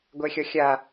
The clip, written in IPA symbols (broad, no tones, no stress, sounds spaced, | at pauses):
ɡʷ ɛ xʲ ɒ xʲ a